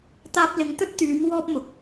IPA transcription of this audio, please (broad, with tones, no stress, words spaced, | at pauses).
t̪aː˧p̚lɪ˨˧ŋt̪ɵ˥t̚ t̪yː˨˧m wɔː˥p̚mʊ˨k̚